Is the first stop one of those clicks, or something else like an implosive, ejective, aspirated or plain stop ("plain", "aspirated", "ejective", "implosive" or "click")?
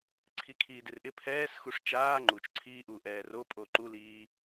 click